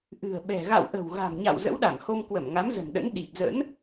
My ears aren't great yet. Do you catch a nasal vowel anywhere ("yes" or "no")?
no